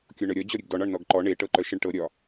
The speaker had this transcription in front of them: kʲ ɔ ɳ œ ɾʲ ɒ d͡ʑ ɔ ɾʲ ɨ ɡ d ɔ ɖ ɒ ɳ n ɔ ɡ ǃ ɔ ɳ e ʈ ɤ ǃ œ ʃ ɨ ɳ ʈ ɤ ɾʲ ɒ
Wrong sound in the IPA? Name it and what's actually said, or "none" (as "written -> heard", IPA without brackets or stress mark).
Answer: ɖ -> ɳ